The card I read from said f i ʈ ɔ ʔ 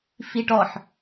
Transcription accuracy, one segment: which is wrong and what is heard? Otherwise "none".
ʔ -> ħ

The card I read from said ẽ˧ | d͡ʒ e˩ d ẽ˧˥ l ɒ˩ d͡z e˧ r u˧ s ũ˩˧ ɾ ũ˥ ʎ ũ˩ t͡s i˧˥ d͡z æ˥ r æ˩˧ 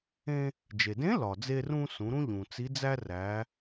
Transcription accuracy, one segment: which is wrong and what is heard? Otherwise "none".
u˧ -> ũ˧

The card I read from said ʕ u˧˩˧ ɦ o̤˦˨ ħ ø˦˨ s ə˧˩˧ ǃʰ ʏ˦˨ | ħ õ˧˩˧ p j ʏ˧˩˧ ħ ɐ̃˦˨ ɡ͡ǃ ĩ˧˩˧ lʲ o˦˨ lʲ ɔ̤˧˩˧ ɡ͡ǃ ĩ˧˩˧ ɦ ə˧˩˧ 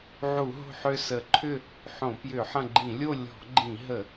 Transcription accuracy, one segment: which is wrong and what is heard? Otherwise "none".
none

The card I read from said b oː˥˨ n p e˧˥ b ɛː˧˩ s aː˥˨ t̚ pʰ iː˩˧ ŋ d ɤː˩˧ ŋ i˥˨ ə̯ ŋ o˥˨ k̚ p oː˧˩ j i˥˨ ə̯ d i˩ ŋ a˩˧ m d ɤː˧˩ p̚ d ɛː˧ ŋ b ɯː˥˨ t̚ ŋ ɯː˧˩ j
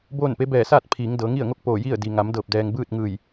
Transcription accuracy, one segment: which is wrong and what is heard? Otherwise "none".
none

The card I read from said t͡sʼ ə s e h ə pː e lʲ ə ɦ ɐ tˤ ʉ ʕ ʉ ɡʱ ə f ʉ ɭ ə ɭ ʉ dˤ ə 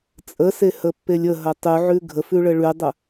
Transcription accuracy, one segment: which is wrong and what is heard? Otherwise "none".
none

